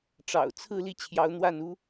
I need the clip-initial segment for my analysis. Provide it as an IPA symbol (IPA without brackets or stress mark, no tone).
ʈ͡ʂ